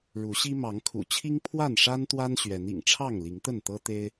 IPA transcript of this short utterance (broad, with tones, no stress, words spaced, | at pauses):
ɻu˨˦ɕi˦ mɑ˨˦ŋkʰṵ˨˩t͡ɕʰi˦ŋ pʰwa˥˨nʂa˦nt̪wa˦n ɕɥɛ˨˦n ḭ˨˩ŋʈ͡ʂʰɑ˥˨ŋli˨˦ŋ t̪ə˥˨nt̪ɤ˦ t̪e˦ɪ̯